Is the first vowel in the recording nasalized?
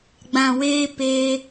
yes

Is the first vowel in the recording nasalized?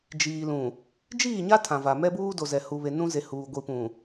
no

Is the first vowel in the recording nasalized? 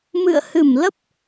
no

